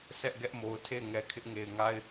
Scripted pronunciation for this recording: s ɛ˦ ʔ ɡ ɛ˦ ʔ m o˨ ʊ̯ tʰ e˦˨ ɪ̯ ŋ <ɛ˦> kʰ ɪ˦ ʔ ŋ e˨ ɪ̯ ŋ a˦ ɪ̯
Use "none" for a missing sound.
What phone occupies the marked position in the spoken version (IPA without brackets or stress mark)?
ɛ˨